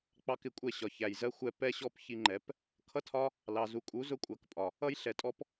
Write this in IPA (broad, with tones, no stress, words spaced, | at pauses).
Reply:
k͡pɑ˦kɪ˧kʷʼɛ˦˨ ɕɒ˨çæ˨jzɜ˦ xʷɛ˧ pɛ˦ɕɔ˦p çi˧ŋ͡ǃɛ˨˦p | kʰʌ˦tʰɒ˦ | lɑ˨zu˨kʼu˨˦z ʊ˦kʷʼɜ˨˦kpʼɒ˨ | ʌ˦j ɬɛ˨tʼɔ˦p